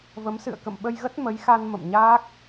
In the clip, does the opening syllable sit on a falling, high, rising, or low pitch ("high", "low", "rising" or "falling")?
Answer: rising